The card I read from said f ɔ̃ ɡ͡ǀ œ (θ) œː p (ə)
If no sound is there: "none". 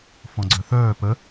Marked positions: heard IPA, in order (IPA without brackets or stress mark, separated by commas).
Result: θ, ə